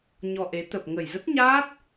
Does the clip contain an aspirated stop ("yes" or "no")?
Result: no